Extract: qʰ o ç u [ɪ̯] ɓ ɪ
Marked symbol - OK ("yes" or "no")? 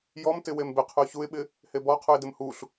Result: yes